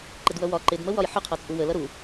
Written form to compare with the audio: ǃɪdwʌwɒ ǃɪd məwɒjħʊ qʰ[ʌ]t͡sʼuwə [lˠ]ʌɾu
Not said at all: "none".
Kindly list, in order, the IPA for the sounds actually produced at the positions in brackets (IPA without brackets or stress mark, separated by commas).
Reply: ɒ, l